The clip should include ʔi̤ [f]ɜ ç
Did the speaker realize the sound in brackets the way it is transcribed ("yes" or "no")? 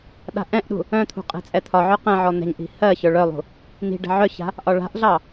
no